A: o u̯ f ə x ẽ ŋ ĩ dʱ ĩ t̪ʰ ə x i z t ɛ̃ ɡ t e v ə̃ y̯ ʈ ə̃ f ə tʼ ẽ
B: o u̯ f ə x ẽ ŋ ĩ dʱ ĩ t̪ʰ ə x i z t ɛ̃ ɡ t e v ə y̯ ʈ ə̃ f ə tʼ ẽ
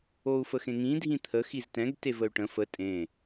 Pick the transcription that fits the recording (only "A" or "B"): B